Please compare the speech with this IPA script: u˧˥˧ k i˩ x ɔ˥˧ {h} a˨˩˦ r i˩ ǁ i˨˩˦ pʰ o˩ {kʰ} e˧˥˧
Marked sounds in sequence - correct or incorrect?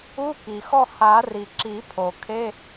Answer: correct, correct

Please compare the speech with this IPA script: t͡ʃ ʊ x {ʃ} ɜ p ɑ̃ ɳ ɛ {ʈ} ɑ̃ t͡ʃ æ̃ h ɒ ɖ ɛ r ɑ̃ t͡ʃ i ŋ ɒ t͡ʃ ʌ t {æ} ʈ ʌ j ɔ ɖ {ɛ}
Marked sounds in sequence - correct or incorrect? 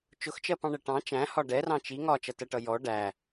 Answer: incorrect: t͡ʃ, correct, incorrect: ɜ, incorrect: æ

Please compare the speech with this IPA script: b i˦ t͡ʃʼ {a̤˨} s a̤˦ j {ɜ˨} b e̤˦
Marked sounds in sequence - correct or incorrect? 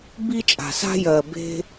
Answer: correct, correct

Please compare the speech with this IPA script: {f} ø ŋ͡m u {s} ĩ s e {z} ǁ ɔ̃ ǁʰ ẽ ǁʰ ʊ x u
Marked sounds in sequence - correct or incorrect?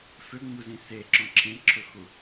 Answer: correct, incorrect: z, incorrect: none

